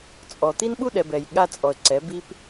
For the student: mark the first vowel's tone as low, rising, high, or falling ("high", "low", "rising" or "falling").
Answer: low